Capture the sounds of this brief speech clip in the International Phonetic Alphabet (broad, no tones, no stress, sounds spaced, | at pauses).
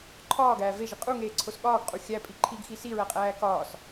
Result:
ǃʰ ɒː ɡ æː v e ʒ i qʼ u ŋ eː ǀʰ o s ɠ ɒː ɡ qʼ u xʲ æ pʼ i ǃʰ i ɡ x i s i ɹ æ qʼ æː k ɒː s